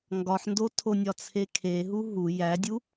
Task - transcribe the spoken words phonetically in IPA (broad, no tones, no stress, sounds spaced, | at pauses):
ŋ ɡ ɒ ħ n d o tʰ o nʲ ɒ t͡sʰ e kʰ e ɦ u ɦ u j æ dʲ u